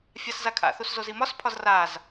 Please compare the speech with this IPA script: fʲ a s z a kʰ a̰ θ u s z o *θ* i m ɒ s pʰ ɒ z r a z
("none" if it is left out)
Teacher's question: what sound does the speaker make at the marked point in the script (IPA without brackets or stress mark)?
z